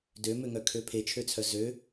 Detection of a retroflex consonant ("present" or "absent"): absent